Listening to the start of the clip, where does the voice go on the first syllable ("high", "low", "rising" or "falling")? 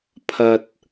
low